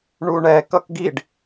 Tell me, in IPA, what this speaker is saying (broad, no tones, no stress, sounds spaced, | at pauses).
ɳ u ɳ ɛ k ʌ k ɡ i ɖ